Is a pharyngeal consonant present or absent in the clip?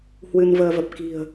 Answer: absent